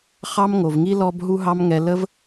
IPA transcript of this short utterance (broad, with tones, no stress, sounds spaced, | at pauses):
χ ɑ˦ m ŋ o˨ v ŋ i˦ l ɔ˦ b ɦ u˦ ɦ ɑ˦ m ŋ ɛ˧ l ə˦ v